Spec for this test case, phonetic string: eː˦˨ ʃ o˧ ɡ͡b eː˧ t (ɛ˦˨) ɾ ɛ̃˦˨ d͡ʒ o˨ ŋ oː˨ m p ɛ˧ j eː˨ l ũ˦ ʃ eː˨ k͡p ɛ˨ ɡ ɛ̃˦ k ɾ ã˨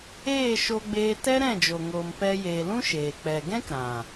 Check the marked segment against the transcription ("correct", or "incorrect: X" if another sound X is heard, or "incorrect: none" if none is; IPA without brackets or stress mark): incorrect: ɛ˦